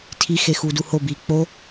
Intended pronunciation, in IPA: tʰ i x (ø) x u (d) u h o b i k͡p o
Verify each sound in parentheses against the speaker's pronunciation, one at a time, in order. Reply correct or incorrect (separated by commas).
incorrect, correct